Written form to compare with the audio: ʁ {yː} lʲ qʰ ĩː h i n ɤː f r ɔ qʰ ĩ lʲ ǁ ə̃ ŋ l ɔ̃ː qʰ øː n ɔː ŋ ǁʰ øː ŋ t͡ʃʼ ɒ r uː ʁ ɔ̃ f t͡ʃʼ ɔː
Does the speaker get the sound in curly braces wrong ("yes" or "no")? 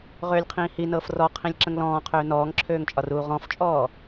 yes